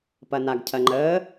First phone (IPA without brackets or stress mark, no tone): p